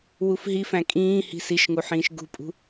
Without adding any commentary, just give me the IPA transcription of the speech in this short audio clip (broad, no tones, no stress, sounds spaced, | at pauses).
w u f ɦ i f æ̃ kʼ ĩː h i̤ s i ʃ ŋ u ħ ĩː ʃ ɡ ṳ pʼ ṳ